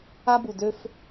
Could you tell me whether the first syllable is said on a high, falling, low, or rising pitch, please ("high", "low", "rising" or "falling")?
high